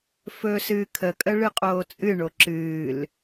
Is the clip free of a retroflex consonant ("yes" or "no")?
no